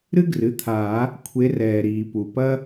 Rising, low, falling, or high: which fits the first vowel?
high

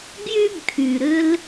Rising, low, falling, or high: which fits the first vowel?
high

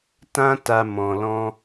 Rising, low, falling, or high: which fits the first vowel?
high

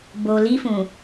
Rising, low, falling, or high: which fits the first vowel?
low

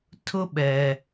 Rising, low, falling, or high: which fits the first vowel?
high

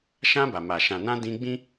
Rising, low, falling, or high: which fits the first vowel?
high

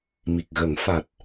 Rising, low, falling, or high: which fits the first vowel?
low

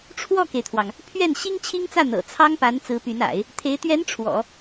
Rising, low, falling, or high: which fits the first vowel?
falling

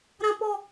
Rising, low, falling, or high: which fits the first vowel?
high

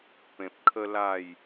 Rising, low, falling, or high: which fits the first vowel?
low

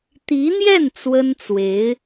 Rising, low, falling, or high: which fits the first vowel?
rising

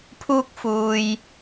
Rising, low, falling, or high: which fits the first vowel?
high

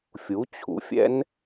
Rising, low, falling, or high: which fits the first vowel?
rising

